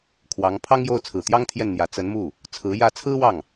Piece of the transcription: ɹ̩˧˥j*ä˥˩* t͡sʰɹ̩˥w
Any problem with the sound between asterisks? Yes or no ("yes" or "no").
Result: no